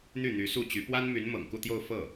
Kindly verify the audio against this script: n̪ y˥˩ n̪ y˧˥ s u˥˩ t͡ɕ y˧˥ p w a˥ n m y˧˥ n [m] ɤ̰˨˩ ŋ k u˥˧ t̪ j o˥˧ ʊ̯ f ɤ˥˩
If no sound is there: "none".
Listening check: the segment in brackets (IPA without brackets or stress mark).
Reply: m